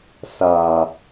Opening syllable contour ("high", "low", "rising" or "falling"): low